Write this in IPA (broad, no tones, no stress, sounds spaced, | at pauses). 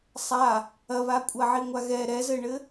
sˤ a | ɐ β a kʷʼ ɐ ʕ i ŋʷ a ɣ ɛ ɾ ɛ z ɘ ɳ ɘ